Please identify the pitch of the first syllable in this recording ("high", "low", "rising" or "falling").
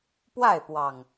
falling